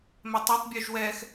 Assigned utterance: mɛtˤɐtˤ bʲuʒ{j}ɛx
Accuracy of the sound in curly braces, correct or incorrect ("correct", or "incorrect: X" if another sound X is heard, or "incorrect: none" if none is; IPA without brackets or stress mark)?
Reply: incorrect: w